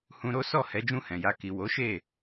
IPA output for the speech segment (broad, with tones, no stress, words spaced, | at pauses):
hũ˧ɾo˦sɔ˦˨hɛ˨˦ d͡ʒũ˦˨hɛ̃˨ja˧ ki˨wo˨˦ʃe˦˨